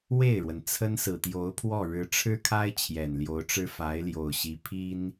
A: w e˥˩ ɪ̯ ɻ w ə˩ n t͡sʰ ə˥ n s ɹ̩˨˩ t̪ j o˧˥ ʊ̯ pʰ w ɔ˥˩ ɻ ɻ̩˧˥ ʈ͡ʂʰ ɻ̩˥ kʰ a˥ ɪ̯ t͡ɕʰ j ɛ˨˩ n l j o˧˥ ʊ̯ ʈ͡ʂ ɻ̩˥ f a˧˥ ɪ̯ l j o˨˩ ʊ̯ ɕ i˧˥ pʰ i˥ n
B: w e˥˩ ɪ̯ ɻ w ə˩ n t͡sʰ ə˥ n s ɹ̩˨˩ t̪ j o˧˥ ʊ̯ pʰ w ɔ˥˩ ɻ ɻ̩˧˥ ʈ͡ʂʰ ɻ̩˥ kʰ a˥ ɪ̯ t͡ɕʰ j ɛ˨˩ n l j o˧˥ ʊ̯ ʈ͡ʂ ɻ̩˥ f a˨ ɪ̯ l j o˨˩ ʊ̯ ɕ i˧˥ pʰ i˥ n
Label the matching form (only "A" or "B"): A